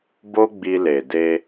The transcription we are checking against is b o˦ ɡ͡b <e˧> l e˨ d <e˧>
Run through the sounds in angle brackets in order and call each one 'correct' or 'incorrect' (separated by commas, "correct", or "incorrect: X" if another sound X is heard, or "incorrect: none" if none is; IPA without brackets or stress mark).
incorrect: i˧, correct